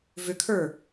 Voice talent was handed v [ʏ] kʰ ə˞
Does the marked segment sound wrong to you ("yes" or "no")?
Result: no